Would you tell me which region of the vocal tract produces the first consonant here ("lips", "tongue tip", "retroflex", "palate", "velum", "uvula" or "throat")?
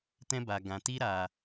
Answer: tongue tip